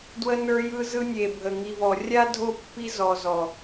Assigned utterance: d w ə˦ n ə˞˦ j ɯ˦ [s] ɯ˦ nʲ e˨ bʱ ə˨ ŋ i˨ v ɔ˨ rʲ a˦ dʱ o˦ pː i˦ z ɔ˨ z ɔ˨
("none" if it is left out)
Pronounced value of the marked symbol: z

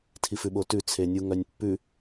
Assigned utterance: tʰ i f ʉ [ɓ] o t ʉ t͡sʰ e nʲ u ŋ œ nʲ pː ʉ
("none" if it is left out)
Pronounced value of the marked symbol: ɓ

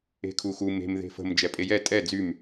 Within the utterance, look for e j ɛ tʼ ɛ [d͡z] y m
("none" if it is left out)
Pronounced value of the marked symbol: d͡z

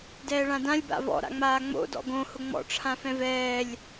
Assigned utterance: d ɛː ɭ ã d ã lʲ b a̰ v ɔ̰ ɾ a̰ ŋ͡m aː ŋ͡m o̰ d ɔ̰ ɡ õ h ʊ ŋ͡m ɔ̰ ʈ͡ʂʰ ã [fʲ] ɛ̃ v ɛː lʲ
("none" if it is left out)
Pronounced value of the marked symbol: f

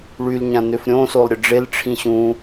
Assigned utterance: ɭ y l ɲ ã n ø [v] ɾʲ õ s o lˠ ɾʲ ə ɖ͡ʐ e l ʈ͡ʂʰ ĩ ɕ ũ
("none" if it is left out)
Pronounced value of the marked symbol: f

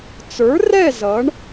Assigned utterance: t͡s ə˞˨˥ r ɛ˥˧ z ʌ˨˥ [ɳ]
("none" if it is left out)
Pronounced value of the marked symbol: ɳ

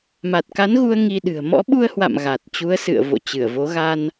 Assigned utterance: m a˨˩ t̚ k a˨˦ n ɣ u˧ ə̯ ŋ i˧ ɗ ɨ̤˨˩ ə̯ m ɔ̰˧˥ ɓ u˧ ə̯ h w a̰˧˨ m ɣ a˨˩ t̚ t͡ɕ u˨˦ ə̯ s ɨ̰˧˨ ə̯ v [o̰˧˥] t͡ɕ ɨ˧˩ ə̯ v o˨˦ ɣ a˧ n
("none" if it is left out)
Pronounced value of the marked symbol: o̰˧˨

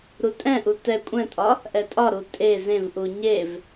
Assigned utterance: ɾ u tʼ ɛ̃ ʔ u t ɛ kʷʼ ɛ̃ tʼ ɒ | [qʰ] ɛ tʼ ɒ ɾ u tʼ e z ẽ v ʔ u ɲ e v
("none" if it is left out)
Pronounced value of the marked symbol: ʔ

